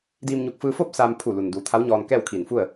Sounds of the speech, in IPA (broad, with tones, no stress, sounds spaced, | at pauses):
d iː˧ m ɲ u˧˩ k̚ f ɯː˧ f oː˥˨ p̚ s aː˧ m pʰ u˧˩ l u˩ n d uː˩˧ t̪ʰ a˧˥ w ɲ ɔː˧ n k ɛː˥˨ w kʰ iː˧˩ n f u˥˨ ə̯